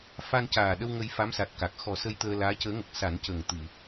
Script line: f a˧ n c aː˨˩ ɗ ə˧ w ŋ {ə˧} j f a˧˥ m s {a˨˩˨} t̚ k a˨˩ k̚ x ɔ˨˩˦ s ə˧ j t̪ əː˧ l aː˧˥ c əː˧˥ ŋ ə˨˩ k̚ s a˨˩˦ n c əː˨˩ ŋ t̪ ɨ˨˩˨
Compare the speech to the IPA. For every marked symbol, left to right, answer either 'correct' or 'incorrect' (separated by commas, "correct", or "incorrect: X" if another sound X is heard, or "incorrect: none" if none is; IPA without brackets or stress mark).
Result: correct, incorrect: a˨˩